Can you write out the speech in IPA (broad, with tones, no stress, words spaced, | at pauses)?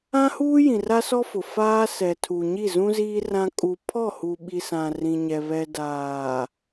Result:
ã˦huː˦ jĩ˨ra˦sɔ˦fʊ˨ faː˦sɛ˨tʰu˨ɲi˦˨ zũ˦ziː˦ rã˦ kʼu˨pʰɔ˦˨hu˨ɓi˨ sã˨rĩ˨ɲɛ˨ βɛ˨daː˨